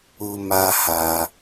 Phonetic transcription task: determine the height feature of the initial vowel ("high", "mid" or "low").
high